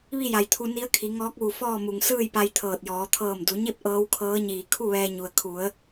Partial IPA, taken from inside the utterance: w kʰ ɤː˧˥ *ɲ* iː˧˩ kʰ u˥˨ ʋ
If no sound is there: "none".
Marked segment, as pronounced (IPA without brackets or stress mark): ɲ